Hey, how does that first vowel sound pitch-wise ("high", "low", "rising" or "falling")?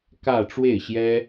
falling